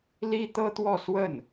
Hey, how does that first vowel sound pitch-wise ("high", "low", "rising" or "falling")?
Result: high